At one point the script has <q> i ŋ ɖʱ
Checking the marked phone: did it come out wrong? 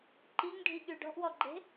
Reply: yes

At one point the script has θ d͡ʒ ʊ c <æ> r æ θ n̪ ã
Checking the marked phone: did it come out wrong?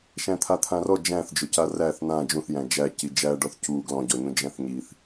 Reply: yes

